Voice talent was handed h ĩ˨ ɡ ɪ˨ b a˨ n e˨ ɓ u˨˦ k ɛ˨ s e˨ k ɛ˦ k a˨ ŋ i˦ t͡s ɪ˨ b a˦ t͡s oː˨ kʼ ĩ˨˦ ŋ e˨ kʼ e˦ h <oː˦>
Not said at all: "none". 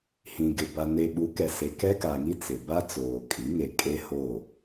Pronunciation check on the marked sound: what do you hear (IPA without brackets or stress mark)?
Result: oː˦˨